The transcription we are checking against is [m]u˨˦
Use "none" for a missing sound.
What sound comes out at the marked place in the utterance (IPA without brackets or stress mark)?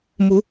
m